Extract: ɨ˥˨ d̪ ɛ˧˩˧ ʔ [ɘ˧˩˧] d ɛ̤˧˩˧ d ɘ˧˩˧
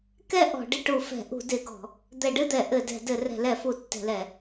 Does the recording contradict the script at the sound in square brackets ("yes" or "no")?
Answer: no